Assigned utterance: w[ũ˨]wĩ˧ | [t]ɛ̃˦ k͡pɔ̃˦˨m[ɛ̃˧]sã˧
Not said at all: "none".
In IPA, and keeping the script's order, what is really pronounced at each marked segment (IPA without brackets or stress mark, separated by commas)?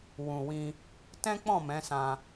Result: ũ˨, t, ɛ̃˨˦